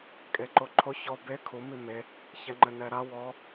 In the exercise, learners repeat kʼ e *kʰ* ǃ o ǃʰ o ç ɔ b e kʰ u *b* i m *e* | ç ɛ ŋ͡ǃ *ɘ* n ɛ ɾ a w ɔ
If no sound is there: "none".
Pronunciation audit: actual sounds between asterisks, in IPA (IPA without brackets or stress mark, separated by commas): none, m, e, ɘ